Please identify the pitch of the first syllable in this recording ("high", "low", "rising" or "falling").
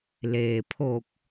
low